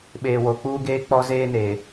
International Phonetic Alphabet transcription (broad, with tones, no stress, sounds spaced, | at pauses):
ɓ eː˨ w o˨ k͡p uː˦ ɡ eː˦ k͡p ɔ˦ z eː˦ n eː˨